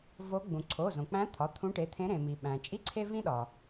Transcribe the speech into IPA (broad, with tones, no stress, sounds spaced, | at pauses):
v o˧˥ ɡ͡b ũ˩ ǀʰ o˩˧˩ z õ˩ k͡p æ̃˧˥ t̪ʰ ɒ˩˧˩ t̪ʰ ũ˧˥ ʈ e˩˧˩ t̪ʰ ẽ˧˥ ɾ ẽ˩ m i˩ ɓ æ̃˩ t͡ʃʼ i˥ ǀʰ e˥ v ĩ˥ ɗ ɒ˩